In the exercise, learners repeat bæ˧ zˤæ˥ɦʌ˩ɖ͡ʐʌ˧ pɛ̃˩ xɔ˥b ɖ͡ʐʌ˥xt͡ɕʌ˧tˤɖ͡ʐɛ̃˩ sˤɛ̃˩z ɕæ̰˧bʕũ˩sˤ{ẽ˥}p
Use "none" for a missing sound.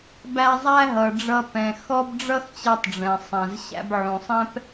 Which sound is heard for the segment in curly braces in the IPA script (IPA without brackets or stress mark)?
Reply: ɛ̃˥